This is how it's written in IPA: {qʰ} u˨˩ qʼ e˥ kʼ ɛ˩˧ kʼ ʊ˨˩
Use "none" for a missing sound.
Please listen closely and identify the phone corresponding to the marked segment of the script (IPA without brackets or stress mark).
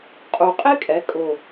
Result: qʼ